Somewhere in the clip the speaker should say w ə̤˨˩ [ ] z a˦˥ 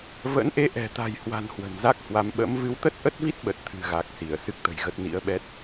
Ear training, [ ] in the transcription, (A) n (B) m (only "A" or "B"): A